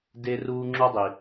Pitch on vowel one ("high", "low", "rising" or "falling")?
high